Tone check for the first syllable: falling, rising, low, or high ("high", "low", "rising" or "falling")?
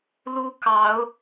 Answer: high